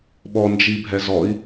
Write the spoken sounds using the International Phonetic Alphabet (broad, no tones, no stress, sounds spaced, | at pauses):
ɓ ɔ n d͡ʒ i bʱ ɛ z ɔ i̯